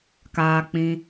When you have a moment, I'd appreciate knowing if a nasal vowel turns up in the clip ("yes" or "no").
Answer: yes